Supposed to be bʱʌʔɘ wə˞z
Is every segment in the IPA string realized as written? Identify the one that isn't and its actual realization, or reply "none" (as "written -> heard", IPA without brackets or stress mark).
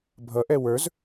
ɘ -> ɛ